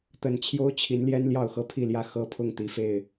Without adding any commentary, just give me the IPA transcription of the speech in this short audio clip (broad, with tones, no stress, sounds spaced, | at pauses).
t̪ ə˨˦ n t͡ɕʰ j o˦ ʊ̯ t͡ɕʰ i˨˦ n l j ɛ˦ n l j ɑ˥˨ ʊ̯ x ɤ˥˨ pʰ i˥˨ l j ä˥˨ x ɤ˦ pʰ ʊ˥˨ ŋ t̪ i˨˦ f e˥˨ ɪ̯